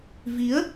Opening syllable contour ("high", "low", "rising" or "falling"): rising